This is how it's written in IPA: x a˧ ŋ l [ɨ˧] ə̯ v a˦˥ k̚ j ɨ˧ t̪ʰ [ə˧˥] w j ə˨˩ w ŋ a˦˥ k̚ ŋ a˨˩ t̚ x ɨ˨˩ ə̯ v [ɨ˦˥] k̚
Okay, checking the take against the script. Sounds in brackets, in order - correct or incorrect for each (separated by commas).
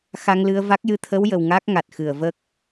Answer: correct, correct, incorrect